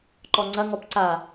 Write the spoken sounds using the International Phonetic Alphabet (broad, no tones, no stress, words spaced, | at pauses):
ǃɔŋ͡ǀɐ ŋɔpǀa